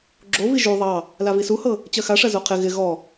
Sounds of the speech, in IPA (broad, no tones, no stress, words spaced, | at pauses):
ɡ͡ǁovi ʒu ðˤɑ | lavisuhɤ | t͡ɕɜxaʂɜ zoqʰɪ ɣɪ ɣɔ